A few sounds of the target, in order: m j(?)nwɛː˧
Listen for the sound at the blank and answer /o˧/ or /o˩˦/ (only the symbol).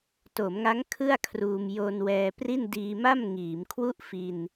o˧